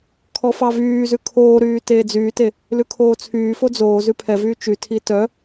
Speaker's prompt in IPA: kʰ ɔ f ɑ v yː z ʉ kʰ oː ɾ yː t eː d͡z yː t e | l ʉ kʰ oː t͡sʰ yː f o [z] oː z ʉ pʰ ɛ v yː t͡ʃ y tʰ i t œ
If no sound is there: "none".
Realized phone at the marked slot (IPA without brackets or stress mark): d͡z